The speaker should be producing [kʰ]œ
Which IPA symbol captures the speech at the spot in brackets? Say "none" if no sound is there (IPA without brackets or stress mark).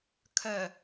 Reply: kʰ